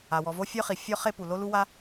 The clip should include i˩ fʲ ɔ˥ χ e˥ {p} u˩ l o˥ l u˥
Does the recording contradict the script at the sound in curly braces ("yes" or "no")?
no